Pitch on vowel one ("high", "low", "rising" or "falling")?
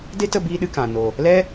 high